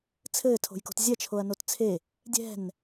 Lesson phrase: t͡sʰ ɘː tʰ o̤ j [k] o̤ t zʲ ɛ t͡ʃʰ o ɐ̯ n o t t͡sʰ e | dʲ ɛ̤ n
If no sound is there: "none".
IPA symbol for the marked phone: k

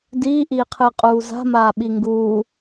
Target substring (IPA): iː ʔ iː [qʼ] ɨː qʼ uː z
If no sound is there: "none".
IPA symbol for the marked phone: qʰ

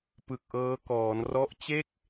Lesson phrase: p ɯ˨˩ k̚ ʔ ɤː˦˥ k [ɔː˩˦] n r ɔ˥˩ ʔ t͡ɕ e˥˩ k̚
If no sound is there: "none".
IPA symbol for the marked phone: ɔː˩˦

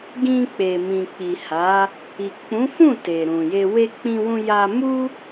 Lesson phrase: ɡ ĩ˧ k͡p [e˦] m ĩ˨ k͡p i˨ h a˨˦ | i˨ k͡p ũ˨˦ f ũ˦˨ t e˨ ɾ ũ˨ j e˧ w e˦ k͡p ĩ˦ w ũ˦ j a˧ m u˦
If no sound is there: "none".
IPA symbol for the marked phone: e˨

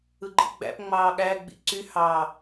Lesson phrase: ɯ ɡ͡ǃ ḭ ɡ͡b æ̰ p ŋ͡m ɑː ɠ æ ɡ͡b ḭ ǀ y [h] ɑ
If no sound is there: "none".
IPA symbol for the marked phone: h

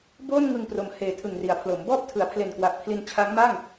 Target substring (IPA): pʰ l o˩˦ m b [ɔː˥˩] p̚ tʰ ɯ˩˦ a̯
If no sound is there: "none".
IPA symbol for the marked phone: ɔː˥˩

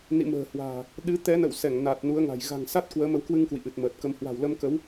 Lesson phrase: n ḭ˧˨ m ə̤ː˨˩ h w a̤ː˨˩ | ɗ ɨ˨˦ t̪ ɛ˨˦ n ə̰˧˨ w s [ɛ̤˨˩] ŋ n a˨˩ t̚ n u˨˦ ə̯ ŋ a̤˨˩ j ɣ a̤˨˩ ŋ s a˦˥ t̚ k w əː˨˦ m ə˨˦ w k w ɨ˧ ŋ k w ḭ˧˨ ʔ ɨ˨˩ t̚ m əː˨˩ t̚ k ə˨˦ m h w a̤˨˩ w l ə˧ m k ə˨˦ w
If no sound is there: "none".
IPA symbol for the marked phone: ɛ˧˩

